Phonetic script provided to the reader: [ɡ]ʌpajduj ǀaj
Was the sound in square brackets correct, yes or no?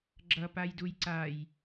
no